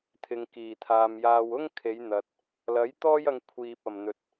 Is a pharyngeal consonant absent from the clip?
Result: yes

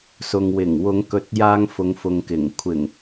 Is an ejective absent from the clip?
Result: yes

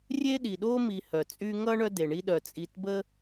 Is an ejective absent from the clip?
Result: no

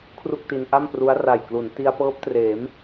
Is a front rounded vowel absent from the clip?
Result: yes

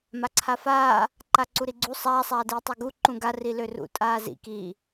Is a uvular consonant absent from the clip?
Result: yes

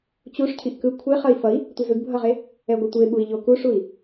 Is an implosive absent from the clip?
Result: no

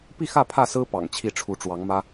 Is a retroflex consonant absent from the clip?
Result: no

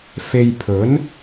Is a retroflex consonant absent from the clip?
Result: yes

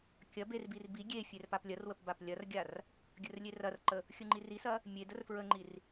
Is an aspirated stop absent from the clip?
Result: yes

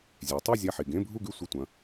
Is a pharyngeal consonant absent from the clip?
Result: no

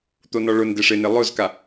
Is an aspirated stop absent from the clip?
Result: yes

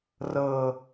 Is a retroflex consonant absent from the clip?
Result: yes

